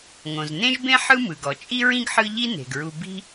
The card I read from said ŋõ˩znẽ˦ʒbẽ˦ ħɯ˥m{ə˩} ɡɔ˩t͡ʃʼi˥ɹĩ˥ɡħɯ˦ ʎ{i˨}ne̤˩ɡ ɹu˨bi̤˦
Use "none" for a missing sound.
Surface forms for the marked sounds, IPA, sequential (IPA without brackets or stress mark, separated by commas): ɯ˩, i˦